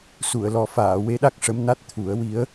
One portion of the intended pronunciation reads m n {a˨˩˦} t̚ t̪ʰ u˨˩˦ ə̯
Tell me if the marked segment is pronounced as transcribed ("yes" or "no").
no